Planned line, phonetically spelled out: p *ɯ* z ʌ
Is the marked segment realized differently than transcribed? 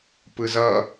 no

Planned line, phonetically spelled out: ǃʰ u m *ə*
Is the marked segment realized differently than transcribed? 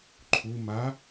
yes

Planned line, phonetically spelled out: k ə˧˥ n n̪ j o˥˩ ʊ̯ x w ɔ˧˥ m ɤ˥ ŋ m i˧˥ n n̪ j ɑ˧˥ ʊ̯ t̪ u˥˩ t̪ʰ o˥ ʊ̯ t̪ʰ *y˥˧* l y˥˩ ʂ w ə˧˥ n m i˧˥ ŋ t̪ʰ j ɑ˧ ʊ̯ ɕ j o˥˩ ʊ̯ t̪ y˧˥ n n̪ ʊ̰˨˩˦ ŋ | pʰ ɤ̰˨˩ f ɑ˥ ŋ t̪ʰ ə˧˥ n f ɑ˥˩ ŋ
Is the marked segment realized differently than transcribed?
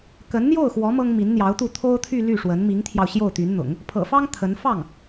no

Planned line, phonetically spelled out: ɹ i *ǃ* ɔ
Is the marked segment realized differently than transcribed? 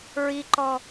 no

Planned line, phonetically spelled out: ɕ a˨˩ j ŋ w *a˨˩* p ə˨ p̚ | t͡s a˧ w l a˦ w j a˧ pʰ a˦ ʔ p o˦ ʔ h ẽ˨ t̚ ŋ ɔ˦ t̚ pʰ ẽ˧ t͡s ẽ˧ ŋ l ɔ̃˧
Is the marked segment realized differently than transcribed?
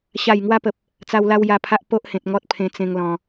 yes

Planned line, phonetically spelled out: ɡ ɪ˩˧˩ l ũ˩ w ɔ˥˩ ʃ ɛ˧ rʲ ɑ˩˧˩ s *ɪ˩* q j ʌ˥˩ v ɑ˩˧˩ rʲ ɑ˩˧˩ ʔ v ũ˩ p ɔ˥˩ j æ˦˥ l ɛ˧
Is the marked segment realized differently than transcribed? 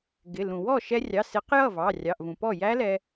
yes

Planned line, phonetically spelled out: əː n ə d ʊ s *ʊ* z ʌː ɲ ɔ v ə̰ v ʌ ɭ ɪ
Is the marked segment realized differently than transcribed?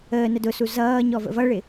yes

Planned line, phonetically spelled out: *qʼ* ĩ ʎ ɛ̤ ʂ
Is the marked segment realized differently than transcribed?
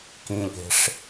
yes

